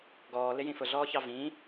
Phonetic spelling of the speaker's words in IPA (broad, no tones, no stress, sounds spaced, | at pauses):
ɡ ɔː l ɪ j ĩ f ʊ ɮ ɔː ç ɑ v ĩ